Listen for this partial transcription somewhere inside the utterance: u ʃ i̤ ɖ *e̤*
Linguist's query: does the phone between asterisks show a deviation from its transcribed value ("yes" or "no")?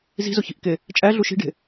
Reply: no